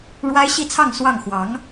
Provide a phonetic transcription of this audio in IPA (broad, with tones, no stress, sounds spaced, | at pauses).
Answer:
ɻ w a˥ ɪ̯ ɕ i˥˧ t͡sʰ ɑ˥˧ ŋ s w ɑ˥˩ ŋ x w ɑ˧˥ ŋ